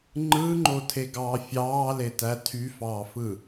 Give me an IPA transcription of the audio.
ŋ͡ǃɯŋ͡ǃotʰeɡɑː fʲɑːletæ tʰyfɑːfɯ

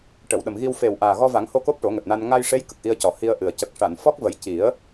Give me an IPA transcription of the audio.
ʈə˨˩˨wɗə˨˩mɣi˧w fe˨˩w ʔaː˨˩ɣɔ˧va˨˩˦ŋho˧ ko˦˥p̚ʈo˨˩˦ŋɛ˨˩p̚na˧n ŋa˧jʂe˧˥j kə˨˩k̚ʔi˧ə̯cɔ˨˩˦ hi˧ə̯ʔɨ˨˩ə̯ cə˨˩k̚ʂa˨˩˨n fɔ˦˥k̚və˨˩˦jci˨˩˦ə̯

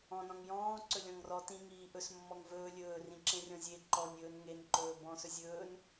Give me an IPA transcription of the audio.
ɔ̃nɔ̃ŋ jɔ̃ːǀɵlʲɔ̃ŋ rɔ tĩŋiː ʔɵsmːɔŋ vɵː lʲɵːrĩǁẽrʲɔ̃ zʲe ǃɔnʲɵːn ŋenǃɵː bɔ̃sɵ zʲɵːn

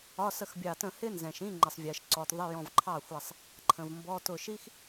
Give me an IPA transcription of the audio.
ɒ˧˥˧sə˥˩xbʲɑ˧˩tə̃˥˩ hɪ˥nzɛ̃˩ʃĩ˧˥˧ ŋ͡ǃə˩sˤvʲɜ˩ʃǀɔ˩tðˤɪ˧˥˧ jɔ̃˧˩vǃʰɑ˥˩xʷæ˧˩sˤ | ǃʰə̃˩vmbɔ˧˥˧ tʊ˧˩ʃi˥x

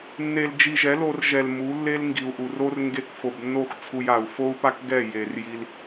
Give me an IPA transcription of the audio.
nːe˧ld͡ʒi˧ ʒɛ˨˦lo˧rʒɛ˨l mu˨˦lːe˦l ŋɡi˨u̯ʔu˨ro˦r ŋɡe˧kfo˨bnːo˦˨x t͡sʰu˧ja˨u̯ fo˦u̯pa˦k ɡɛ˦˨ je˨rji˧l

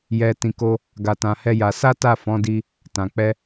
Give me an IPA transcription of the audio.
jɛ˧ tĩ˧ko˦ | ɡa˧tã˧hɛ˦ja˧ sa˦ta˦˨ fɔ̃˨˦di˧ | tã˨k͡pɛ˧

